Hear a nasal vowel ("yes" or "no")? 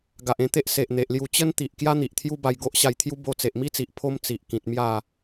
yes